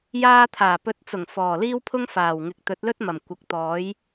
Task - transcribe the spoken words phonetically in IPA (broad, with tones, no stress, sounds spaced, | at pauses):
j aː˧ t̪ʰ aː˨˩ p ɵ˨˥ t̚ t͡s ʊ˨˩ ŋ f ɔː˨˩ l iː˥ w pʰ ʊ˥ ŋ f aː˨˩ w ŋ ɪ˨ k̚ t̪ ɵ˨˥ t̚ l ɵ˥ t̚ m ɐ˨˩ m kʷ ɐ˨ k̚ t̪ ɔː˨˥ j